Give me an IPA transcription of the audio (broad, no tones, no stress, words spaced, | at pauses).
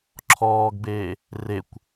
ǁʰɔːɡbeː | rekʷ